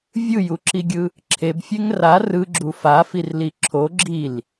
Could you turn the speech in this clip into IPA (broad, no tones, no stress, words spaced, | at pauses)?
vʲɯjuǁiɡʲɯ | ǁʰebfʲeŋ ra rɯɡ͡ǁu fafirli ǁʰo ɡ͡ǁil